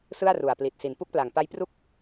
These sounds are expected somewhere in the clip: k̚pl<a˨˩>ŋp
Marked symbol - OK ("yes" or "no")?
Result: yes